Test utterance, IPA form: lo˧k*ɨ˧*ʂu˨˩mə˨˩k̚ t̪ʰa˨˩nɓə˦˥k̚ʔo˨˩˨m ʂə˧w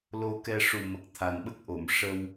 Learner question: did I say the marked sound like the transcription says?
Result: no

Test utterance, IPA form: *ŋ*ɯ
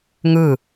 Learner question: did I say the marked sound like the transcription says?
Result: yes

